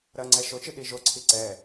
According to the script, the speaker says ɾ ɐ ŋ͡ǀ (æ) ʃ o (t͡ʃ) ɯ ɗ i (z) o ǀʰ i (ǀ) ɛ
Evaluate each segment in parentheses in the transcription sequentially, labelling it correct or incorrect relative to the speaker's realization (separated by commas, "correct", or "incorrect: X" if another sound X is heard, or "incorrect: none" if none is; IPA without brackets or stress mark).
incorrect: ɛ, correct, incorrect: ʒ, correct